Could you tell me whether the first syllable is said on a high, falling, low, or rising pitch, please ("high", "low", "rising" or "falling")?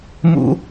high